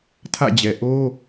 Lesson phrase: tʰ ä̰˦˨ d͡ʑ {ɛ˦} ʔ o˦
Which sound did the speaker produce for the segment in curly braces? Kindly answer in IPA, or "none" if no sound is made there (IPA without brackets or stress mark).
ɛ˨